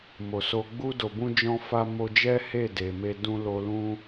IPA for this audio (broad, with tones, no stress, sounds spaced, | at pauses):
m o˨ s o˧ ɡ͡b u˧ d o˨ b ũ˧ d͡ʒ ɔ̃˧ f a˧ m o˧ d͡ʒ ɛ˦ h e˦˨ d e˨ m e˧ d ũ˧ l o˧ l ũ˦